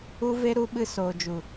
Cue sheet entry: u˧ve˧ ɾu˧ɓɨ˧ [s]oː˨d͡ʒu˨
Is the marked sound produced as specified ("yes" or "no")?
yes